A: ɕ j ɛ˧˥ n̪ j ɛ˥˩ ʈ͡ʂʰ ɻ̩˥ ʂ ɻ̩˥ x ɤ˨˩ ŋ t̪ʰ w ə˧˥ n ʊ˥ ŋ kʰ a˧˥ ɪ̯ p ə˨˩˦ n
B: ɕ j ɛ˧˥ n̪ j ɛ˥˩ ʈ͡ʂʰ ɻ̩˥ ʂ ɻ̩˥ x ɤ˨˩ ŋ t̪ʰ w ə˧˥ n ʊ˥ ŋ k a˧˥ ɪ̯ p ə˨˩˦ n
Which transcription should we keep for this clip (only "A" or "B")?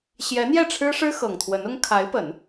A